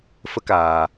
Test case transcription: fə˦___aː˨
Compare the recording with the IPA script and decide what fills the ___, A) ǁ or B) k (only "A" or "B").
B